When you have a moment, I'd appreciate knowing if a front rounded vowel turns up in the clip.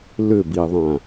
yes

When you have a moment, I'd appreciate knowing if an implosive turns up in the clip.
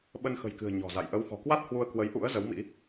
yes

